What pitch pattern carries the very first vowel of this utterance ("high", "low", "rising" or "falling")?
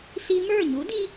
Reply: high